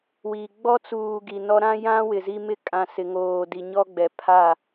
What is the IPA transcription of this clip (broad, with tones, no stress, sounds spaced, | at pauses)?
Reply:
w i˨ ɡ͡b ɔ˦ t͡s uː˨ ɡ i˨ n ɔ˦ ɾ ã˦ j ã˦ w ɪ˨ z i˦ m ɪ˦ kʼ ã˨ s ɪ˨ ŋ oː˨ d i˨ ɲ ɔ˦ ɡ͡b ɛ˨ pʰ a˦˨